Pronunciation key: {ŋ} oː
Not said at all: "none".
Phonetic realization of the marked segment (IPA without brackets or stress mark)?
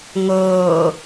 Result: ŋ